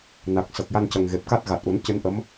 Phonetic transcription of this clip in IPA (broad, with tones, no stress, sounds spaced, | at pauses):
n a˨˩ k̚ s ə˨˩ k̚ j a˧ n c ə˨˩ ŋ ɣ e˨˩ p̚ k a˦˥ t̚ ɣ a˨˩ t̚ ʔ u˨˩˦ n c ɨ˧˥ n ʔ ə˧˥ m